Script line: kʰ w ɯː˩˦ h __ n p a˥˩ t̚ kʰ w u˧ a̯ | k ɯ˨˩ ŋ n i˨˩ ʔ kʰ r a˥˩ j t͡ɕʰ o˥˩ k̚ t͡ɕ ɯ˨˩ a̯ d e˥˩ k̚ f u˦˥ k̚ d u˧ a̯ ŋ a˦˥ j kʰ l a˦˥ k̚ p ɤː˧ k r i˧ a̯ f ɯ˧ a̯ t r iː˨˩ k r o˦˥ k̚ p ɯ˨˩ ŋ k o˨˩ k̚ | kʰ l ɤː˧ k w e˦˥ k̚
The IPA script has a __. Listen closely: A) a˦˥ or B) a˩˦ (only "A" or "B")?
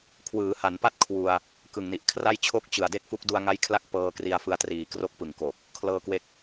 B